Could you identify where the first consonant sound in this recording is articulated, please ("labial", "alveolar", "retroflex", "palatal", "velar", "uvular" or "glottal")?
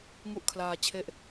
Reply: velar